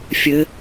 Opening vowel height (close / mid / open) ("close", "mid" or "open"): mid